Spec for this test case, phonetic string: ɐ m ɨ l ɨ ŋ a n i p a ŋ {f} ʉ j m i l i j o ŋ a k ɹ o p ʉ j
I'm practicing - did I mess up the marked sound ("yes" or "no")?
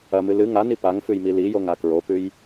no